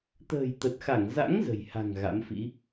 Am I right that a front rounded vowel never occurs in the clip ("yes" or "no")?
yes